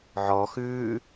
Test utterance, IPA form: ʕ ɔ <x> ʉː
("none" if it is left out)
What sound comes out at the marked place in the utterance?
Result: x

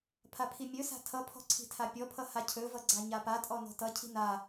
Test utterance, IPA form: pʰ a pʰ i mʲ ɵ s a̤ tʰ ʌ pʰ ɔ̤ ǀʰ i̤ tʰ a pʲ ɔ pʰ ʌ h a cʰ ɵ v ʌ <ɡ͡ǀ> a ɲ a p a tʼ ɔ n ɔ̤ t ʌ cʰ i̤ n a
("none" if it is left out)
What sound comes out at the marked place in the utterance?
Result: ɡ͡ǀ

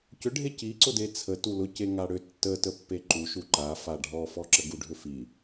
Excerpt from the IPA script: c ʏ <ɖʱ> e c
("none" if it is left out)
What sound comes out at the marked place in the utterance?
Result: ɖʱ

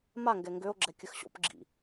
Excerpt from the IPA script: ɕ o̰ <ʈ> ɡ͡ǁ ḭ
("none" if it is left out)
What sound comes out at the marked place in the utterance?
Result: p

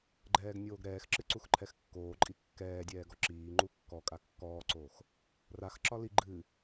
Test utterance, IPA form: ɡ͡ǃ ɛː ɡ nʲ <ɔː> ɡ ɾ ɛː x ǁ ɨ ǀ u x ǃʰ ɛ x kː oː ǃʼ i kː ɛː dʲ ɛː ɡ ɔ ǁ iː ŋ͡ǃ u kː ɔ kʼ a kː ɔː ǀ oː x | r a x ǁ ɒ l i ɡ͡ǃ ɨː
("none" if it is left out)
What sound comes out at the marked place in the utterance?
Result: oː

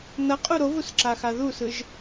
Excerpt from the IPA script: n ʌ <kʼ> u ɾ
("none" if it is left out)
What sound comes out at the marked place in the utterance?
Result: qʼ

